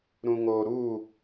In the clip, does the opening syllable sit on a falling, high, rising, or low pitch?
low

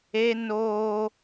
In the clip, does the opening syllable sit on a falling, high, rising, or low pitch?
high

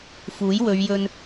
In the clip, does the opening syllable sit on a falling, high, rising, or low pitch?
rising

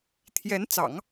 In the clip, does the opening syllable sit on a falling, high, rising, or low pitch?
rising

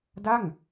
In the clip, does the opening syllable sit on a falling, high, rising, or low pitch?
falling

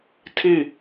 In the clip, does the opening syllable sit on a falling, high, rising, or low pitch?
falling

